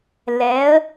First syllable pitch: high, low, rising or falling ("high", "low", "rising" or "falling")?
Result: rising